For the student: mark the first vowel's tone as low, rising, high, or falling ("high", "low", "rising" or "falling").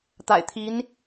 low